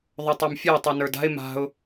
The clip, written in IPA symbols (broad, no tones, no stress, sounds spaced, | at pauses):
ðˤ o tˤ a m fʲ ɛ ɪ̯ tˤ i n ə˞ d a̤ ɪ̯ m a̤ ʊ̯